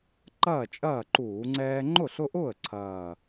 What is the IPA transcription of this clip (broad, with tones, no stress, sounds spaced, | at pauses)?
ǃ ɐː˥˩ t͡ʃʼ ɐː˥˩ ǃ uː˧˩˧ ŋ͡ǀ ɛː˦ ŋ͡ǃ ʊ˥˩ ɬ ʊ˦ ʔ ʊː˥˩ ə̯ ǀʰ ɐː˨˩